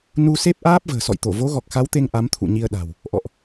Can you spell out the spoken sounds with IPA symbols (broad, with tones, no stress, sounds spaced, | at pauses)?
n u˧ s e˦˥ p̚ ʔ aː˦˥ p̚ v ə̤ː˨˩ s ɔ̰˧˨ j t̪ o˧˩ v o˨˦ ɣ ɔ˨˩ k̚ x a˨˦ w t̪ e˧ ŋ ʔ a˨˦ m t̪ʰ ṵ˧˨ ɲ i˧ ə̯ ɗ a̤˨˩ w | ʔ ɔ̰˧˨ ʔ